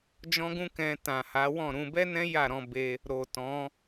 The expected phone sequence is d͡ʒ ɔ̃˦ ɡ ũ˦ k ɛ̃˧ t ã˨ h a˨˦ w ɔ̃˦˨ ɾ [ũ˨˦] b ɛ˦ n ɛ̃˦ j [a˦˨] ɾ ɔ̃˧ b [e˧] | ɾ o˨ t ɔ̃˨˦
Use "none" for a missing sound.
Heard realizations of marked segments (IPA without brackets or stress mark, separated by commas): ũ˧, a˦˨, e˧